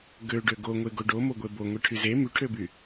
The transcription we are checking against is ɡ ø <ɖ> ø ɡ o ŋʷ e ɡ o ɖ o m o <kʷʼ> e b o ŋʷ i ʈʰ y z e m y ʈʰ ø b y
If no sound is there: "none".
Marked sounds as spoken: ɖ, ɡʷ

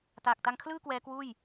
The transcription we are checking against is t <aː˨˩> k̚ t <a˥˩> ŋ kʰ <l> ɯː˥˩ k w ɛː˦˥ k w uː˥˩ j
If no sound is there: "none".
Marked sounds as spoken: aː˨˩, a˧, l

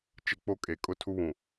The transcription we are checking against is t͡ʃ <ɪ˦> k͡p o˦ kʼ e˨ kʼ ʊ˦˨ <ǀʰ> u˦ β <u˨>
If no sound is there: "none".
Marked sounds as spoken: ɪ˦, tʰ, ũ˨

